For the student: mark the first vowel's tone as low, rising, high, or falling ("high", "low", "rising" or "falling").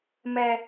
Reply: high